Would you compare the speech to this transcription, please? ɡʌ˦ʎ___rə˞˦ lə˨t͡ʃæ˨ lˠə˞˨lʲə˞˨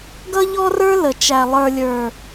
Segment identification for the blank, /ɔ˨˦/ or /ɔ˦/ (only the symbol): ɔ˦